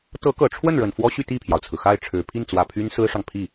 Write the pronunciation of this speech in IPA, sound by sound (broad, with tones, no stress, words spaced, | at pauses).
t̪ɤ˧˥kɤ˨˩ʈ͡ʂʰwə˥˩nɻə˨˩n fwɔ˥ɕy˥˧ t̪i˥˩pʰjɑ˩ʊ̯t͡sʰɹ̩˩ xa˥˩ɪ̯ʈ͡ʂʰɻ̩˨˩ pʰi˥˩nt͡swä˨˩ pʰy˥n sɹ̩˥ʂɑ˨ŋpʰi˥˩